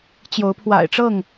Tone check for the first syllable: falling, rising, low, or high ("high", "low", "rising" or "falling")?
rising